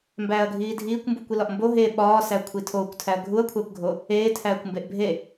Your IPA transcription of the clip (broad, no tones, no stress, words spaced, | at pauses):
mbæːɐ̯ɡʱiːdʱiːkʷmbukʷ ilɒʔmbo ɦe ɓɒːsækʷʰi tʰoːkʷtʰæɐ̯ ɡʱuɐ̯kʷʰækʷɡʱo | eːtʰæːkʷmbeʔ bʱe